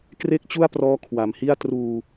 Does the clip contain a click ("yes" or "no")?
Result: no